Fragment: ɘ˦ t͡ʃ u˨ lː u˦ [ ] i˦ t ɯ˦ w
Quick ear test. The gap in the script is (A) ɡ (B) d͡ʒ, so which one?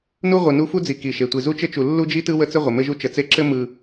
B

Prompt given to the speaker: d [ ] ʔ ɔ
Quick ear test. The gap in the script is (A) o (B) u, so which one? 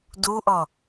B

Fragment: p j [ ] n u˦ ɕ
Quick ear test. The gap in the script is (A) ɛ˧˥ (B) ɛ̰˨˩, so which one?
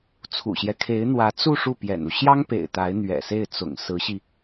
B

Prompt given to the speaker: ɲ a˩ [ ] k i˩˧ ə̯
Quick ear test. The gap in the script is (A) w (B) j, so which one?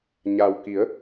A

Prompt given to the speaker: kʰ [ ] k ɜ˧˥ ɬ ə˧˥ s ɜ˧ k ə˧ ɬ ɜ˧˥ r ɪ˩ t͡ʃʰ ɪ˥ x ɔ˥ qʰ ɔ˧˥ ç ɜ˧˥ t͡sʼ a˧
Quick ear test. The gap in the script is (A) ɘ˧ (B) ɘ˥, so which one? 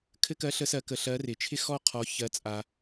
B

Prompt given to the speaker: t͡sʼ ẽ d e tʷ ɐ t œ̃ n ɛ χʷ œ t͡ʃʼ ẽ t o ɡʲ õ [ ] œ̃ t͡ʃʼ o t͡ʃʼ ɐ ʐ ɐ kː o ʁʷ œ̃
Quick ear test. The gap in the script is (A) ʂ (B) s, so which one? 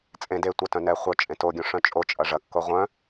A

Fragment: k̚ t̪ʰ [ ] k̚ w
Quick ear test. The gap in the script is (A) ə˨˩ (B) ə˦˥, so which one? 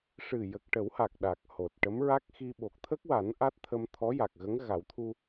B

